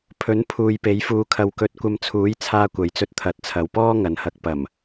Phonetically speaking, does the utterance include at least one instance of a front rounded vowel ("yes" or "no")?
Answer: no